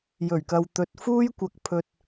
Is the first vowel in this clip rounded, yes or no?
yes